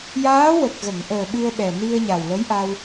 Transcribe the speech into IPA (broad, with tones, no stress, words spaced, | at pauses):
jaː˧˥wə˨˩k̚ɣə˨˩˨ŋʔəː˨˩ ɓɨ˧ə̯ɓɛ˨˩ ni˧ə̯ɲa˨˩wlə˧˥jʔa˧w